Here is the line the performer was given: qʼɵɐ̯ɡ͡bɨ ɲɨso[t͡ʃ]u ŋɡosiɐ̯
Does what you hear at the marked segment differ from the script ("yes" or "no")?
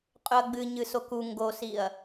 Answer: yes